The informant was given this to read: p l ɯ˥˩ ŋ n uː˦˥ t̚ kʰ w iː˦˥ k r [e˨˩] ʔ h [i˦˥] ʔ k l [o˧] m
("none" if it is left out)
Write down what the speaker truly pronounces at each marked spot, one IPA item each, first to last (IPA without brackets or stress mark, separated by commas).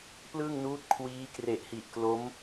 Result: e˨˩, i˨˩, o˦˥